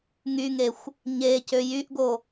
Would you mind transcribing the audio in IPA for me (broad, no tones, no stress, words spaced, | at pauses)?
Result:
ŋyŋexʷ | ɲe cøjyʔɡo